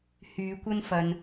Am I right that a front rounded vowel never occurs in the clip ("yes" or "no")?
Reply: no